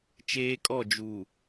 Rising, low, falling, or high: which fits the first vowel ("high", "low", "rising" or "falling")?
high